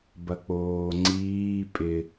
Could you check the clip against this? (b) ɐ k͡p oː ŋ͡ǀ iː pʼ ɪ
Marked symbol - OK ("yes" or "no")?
yes